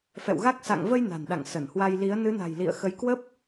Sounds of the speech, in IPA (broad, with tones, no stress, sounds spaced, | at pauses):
f ɛ̰˧˨ w ɣ a˦˥ k̚ s a̰˧˨ ŋ v ə˧ j n a̤˨˩ n ɗ a̰˧˨ ŋ s ə˧˩ n h w a˧ j l i˨˦ ə̯ n ɨ˨˦ n a̤˨˩ j l ḭ˧˨ ə̯ x ə˨˦ j k w ə˦˥ p̚